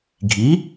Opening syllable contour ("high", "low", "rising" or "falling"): rising